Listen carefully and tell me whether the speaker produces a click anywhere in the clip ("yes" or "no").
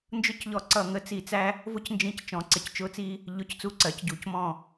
yes